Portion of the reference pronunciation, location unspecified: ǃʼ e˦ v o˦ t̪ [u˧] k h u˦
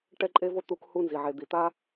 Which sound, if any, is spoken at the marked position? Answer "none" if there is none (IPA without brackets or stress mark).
u˧